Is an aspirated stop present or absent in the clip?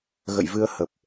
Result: absent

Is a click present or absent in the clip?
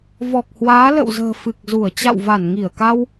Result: absent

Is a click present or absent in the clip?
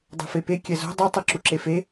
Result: present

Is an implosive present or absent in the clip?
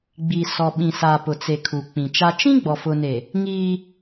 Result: present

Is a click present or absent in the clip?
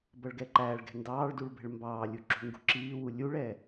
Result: present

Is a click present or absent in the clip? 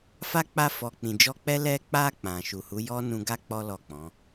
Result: absent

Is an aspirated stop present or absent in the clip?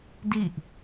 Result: absent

